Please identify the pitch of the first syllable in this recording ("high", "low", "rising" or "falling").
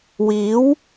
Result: rising